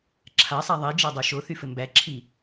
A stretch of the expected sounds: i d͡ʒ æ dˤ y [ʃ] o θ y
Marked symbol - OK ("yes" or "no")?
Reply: yes